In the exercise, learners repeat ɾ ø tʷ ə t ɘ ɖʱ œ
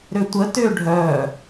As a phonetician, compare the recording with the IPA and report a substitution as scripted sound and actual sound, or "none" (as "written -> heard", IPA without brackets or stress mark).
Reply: ɘ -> ø